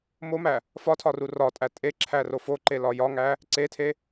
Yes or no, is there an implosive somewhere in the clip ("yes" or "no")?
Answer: no